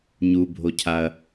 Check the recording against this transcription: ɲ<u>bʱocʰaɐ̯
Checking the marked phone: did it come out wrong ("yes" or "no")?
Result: no